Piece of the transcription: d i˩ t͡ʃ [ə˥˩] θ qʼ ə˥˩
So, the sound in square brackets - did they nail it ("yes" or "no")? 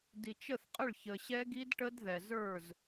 yes